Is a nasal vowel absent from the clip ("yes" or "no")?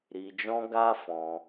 no